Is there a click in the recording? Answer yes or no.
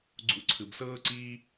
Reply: yes